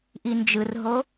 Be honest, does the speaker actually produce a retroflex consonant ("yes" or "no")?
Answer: no